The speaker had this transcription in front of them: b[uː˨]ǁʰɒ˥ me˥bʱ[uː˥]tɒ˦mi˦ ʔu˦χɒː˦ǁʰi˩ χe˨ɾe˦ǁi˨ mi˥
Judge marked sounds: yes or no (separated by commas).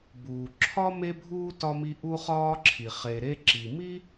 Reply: no, yes